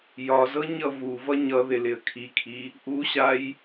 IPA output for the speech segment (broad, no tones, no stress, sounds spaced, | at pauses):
j ɒ z ɤ ɲ ʌ v u v ʌ ɲ ʌ ð ɪ l ɪ ə̯ kʰ i kʰ i | ʔ u ɕ a j